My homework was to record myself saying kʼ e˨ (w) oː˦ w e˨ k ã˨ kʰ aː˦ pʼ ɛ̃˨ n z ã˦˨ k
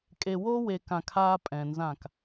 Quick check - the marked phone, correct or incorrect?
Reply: correct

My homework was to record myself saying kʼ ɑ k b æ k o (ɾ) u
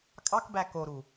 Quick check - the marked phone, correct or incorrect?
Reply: correct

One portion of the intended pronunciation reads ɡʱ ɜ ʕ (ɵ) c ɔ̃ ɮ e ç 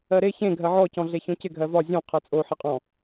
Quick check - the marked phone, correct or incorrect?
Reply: incorrect: ɔ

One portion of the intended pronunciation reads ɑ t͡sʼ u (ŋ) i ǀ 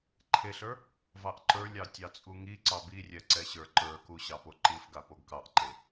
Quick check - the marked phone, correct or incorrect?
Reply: correct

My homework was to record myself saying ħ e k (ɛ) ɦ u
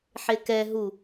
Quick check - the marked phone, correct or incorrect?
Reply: correct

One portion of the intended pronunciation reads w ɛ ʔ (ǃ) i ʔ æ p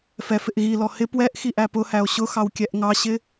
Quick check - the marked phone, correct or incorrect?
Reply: incorrect: x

